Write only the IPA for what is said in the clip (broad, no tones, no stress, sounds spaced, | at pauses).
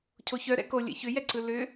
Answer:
cʰ o ç œ ɾ ɛ̰ k o lʲ ɛ̰ ç ʏ j ɛ ǀ ɯ l ʏ